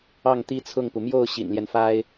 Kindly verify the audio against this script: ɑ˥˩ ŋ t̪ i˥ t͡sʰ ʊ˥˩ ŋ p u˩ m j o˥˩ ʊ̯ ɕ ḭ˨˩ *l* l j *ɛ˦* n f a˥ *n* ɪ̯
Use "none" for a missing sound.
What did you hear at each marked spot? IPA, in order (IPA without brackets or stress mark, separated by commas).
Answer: n, ɛ˦, none